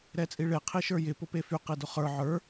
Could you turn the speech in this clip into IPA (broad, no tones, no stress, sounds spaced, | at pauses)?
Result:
ɾ ɛ t͡sʼ i ɭ e qʰ i ʃ ə˞ j ɪ p ʊ p e f y q i d ʊ χ ə˞ ʕ ə˞